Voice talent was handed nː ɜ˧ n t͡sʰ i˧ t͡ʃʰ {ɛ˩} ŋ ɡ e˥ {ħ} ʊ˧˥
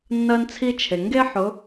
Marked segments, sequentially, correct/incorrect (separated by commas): incorrect, correct